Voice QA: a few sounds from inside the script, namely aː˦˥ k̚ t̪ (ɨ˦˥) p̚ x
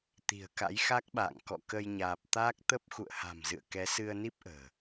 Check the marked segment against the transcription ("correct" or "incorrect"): incorrect